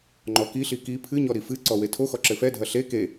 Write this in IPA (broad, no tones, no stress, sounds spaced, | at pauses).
ŋ͡ǃ ɔ k i ɬ i k i pʰ ɨ ɲ ɔ ɾ i f ɨ ǀ ɔ w e tʰ o x ɔ ǁ ɘ f ɛ dʱ ɐ ɬ e k e